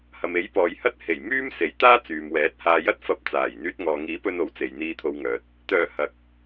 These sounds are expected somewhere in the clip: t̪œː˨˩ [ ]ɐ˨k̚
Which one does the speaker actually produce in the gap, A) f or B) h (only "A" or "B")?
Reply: B